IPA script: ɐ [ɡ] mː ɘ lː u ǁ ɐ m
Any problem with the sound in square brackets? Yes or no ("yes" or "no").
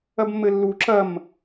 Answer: yes